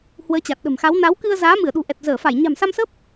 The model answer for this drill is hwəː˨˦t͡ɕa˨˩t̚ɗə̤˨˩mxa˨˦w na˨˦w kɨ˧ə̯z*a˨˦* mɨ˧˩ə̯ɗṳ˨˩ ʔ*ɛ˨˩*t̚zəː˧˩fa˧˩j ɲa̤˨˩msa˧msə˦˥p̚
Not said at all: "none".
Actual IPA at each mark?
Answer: aː˨˦, ɛ˨˩

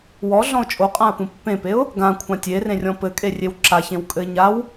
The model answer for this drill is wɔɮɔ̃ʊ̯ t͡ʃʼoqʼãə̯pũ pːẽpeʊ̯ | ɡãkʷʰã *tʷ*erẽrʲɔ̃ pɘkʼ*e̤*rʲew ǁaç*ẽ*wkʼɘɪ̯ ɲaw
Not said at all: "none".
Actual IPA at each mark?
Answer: tʲ, e, ẽ

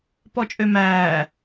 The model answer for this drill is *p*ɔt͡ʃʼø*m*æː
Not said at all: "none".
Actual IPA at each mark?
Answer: p, m

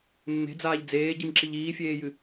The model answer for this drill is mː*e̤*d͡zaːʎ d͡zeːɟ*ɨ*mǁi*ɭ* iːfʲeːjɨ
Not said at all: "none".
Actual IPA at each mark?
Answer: e̤, i, ʎ

